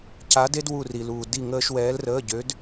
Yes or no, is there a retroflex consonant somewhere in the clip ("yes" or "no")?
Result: no